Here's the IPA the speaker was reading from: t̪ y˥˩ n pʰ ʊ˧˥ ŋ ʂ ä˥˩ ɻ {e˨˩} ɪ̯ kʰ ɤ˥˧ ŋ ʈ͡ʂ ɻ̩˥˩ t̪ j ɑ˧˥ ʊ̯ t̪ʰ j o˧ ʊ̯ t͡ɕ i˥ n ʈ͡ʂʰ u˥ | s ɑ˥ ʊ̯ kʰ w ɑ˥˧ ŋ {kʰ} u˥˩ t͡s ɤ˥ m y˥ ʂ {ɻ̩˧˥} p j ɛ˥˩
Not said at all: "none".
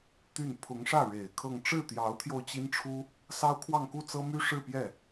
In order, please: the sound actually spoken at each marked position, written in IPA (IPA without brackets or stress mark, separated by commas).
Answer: e˨˩, k, ɻ̩˥˧